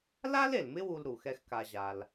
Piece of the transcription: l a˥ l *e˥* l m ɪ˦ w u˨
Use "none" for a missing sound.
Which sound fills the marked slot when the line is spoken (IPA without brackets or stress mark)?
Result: e˩